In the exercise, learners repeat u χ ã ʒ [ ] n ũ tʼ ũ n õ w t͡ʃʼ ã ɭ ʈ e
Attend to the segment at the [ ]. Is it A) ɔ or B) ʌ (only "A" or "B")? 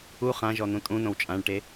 A